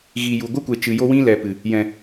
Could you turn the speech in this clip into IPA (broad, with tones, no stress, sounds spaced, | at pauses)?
ɣ i˨ j u˨ ɡʷ ɨ˦ kʷ e˨ t͡ʃ ɨ˨ j o˦ w ĩ˦ l ɛ˨ p ɨ˨ | j ɛ̃˨